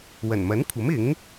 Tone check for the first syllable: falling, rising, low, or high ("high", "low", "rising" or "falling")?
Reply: low